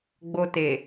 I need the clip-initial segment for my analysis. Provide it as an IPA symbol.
ɡ͡b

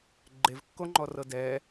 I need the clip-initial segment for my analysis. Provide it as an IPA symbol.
ɡ͡ǃ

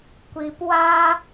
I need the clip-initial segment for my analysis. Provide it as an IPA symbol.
kʷ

